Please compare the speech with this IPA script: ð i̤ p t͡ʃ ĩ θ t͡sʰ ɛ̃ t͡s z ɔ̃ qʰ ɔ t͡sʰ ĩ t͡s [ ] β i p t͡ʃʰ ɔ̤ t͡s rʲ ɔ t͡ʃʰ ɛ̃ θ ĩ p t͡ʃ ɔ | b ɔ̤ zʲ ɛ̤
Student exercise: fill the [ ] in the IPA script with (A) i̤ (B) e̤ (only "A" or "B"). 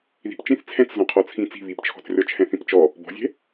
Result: A